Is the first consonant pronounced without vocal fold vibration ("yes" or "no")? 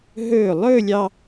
no